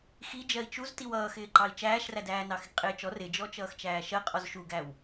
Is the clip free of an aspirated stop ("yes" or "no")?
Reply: yes